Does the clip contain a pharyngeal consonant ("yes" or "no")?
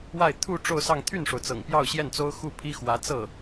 no